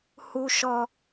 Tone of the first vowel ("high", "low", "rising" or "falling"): high